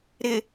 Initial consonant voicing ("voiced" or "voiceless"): voiced